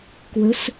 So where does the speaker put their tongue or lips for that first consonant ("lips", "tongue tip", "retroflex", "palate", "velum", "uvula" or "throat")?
velum